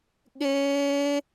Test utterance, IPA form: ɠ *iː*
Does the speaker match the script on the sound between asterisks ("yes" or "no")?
no